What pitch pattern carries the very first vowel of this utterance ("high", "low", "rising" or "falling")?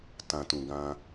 low